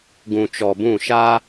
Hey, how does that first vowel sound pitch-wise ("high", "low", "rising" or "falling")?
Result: low